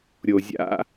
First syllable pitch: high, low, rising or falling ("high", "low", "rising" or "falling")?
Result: low